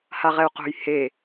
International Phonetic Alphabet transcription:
haʁɛu̯qo̤j he

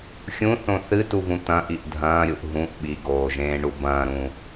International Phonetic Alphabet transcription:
xʲũθõ θɨtuvũ t̪ɐ̃ʔiʔ dʱɐ̃ːɾʲuʔ ɦũʔ ɓiɡoːʒẽːɳu bɐ̃ːɾũ

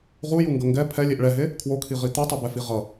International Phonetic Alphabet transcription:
ʁujuŋɡʌ ŋɡɛ pʰɛlʲeʔ ɭɛɦe | kʰwokʰiʁi t̪utˤɯbɛfi ʁʌ

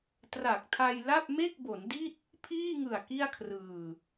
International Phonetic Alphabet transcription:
tra˨˩k̚tʰa˧jla˥˩p̚ me˥˩k̚bo˩˦ndi˥˩t̚ | pʰiː˥˩ŋɯ˨˩a̯ ki˥˩a̯kʰrɯː˨˩

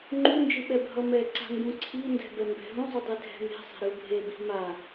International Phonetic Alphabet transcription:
ŋ͡ǃund͡ʒɯ ɓɛbʱʌmɛǀa̤ ŋɡũǀʰindɛ̤ bɛmbɛ̤ɦũzˤu dˤedʱɛ̤me̤sˤɛ̤ ɾɯbʱebi̤ ma

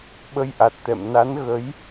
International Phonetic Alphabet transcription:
ɓə˧jʔa˨˩t̚t̪ɛ̰˧˨m na˨˦nɣə˨˦j

